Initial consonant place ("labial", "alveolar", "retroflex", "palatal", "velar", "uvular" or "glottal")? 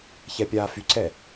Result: palatal